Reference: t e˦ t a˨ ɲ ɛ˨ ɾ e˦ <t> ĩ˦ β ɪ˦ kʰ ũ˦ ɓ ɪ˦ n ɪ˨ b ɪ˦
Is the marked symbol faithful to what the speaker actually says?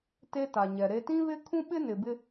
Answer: yes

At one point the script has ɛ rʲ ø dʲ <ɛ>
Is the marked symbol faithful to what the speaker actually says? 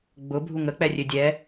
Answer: yes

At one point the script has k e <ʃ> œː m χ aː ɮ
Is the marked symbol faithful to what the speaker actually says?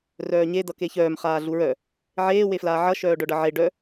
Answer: no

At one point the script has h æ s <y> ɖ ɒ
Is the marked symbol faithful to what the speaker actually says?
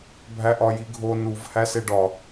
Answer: no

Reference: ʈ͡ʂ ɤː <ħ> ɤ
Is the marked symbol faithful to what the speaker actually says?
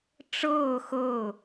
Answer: no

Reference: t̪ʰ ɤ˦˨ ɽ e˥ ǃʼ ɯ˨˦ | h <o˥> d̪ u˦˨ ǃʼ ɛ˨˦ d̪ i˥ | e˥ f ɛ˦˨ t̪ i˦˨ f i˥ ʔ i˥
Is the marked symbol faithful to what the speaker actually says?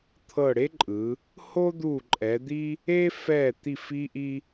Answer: yes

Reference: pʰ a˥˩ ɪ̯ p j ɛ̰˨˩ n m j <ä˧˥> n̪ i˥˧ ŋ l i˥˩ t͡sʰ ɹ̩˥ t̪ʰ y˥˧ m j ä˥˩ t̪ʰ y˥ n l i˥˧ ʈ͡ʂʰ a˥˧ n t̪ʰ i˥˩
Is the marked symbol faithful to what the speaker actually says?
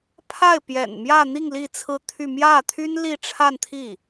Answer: no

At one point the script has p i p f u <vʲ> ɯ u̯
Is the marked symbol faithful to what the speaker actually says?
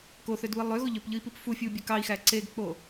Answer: no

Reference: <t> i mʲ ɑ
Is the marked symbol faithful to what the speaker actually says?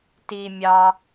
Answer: yes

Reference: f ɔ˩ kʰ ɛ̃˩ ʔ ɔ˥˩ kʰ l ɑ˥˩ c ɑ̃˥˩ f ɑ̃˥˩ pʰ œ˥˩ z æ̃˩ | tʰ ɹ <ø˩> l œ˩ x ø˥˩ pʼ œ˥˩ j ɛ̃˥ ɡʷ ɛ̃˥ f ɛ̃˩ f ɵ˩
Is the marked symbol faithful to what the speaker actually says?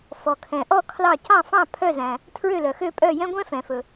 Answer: no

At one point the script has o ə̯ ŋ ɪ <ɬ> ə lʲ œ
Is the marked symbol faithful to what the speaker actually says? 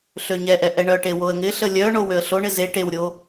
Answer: yes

